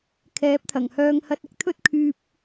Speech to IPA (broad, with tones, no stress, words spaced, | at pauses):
kʰɛː˨˥p̚t̪ʰɐ˨˩ŋhœː˧ŋhɐ˧t̚ ɪ˨k̚t̪ʰɵ˥t̚ kʰyː˧p̚